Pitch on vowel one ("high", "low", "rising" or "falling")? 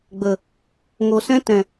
low